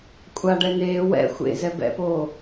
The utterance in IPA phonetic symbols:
kʷʼ a ɖ ɛ n eː w ɛ̰ xʷ ḛ z ɛ b ɛ̰ p oː

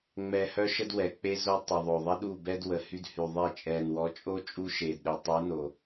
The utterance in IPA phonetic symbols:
ŋ͡m ɛ˨ h œ˦ ʃ ə˦ d w ɛ˨ k͡p e˦ z o˦ tˤ ə˨ ðˤ o˨ ðˤ ə˦ ɗ u˦˨ b ɛ˦ d w ə˨ h y˦ d h y˨ ðˤ e˦˨ t͡ʃʼ ɛ˨ n w ɔ˨˦ t͡ʃʼ o˦ t͡ʃʼ u˦ ʃ e˨ d ɗ e˨ tˤ u˨˦ n o˨

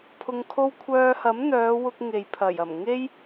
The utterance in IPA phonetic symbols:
pʰ ʊ˧ ŋ kʰ o˥ w kʷʰ œː˧ h ɐ˨˥ m n̪ œː˨˧ w ʊ˧ k̚ ŋ e˨ j pʰ ɐ˨˩ j ɐ˨˩ m ŋ e˥ j

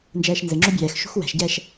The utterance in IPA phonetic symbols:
n d͡ʒ ɛː ʃ n z ɘ ŋ͡ǁ o bʲ ɛː x ʃ ṳ x w ɛ̤ ʃ ɟ ɛː ʃ

